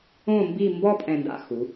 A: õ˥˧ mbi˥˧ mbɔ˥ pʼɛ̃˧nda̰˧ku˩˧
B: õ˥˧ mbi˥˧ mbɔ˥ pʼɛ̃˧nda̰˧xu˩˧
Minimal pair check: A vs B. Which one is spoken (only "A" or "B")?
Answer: B